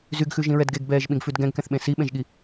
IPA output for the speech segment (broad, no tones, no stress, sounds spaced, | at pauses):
z y ɡ x ʉ ʒ ĩ ɹ ɛ d ɡ e ɡ b ɛː ʒ ɓ ĩ ɡ f ʉ d ɡ ɛ̃ ɡ k ɛ̃ θ ɓ ẽ s i ɓ ẽ ʒ ɠ i